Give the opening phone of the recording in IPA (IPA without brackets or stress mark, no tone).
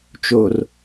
t͡ʃ